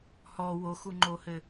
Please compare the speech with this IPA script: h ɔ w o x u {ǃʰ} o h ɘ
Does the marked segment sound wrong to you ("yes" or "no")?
yes